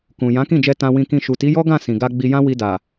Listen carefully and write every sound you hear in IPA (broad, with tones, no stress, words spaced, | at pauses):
kũ˨ jã˨˦kĩ˦˨d͡ʒɛ˧ tã˧wĩ˧kĩ˧ ʃu˨ti˨˦jɔ˦ɡã˦˨ sĩ˨ɡa˧ ɡ͡bi˧jã˦wi˧da˨